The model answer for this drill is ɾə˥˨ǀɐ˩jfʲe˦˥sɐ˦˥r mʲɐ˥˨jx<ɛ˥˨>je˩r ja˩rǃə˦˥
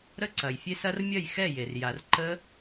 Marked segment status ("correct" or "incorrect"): correct